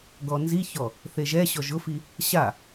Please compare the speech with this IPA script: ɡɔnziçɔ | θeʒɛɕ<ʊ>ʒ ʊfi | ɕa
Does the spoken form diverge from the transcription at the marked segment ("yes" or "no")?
yes